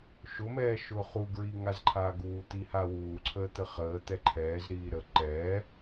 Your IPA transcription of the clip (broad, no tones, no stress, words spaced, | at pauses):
ʃʊmɛː ʃʊːχuɡɹi ŋazǃʰaːɡuːt̪i hawuːǀʰəː t̪əχəːt̪ɛ ǃʰɛːzɾiː ɾə ǃɛː